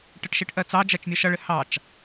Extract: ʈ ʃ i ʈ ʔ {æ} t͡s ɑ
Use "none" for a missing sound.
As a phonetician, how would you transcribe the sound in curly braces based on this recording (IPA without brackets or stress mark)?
ɜ